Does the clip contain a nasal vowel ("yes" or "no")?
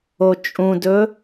yes